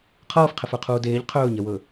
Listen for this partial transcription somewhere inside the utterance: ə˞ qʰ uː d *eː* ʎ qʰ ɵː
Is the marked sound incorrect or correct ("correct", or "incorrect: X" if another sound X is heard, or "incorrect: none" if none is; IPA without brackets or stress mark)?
correct